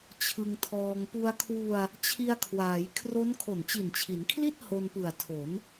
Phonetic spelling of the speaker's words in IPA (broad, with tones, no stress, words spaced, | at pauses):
t͡ɕʰɯ˧ŋtʰɔː˧ŋ pu˧a̯kʰwu˧a̯ | t͡ɕʰi˧a̯kʰwaː˩˦jkʰro˦˥n kʰo˨˩nt͡ɕi˨˩nt͡ɕʰi˩˦nkʰli˥˩t̚ ho˧npɯ˨˩a̯tʰo˩˦n